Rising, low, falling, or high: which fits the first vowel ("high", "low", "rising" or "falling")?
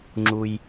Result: high